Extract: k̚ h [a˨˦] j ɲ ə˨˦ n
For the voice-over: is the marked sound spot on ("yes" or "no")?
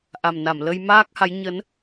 yes